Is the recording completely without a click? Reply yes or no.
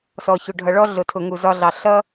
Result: yes